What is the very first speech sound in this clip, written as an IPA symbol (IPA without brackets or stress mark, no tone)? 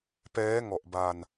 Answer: p